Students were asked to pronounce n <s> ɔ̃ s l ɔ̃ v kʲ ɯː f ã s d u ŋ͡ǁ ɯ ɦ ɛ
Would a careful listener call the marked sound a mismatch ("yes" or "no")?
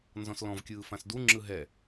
yes